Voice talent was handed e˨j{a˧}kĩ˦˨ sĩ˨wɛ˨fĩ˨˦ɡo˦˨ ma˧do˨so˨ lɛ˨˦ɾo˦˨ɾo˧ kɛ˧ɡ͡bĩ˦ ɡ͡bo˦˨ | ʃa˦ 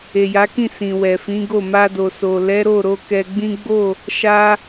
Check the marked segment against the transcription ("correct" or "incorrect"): incorrect